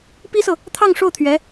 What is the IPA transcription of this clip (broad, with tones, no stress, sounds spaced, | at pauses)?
p i˥ s ɤ˨ | t̪ʰ ɑ˥˧ ŋ ʂ o˥˩ ʊ̯ t̪ʰ ɥ ɛ˧˥